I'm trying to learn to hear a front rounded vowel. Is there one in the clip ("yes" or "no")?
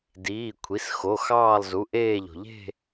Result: no